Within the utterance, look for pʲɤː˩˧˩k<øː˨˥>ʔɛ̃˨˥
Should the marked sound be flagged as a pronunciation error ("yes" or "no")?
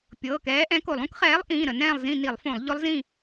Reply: yes